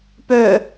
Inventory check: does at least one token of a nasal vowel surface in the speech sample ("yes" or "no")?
no